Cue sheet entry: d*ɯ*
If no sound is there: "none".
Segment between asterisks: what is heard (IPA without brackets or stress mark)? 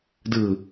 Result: ɯ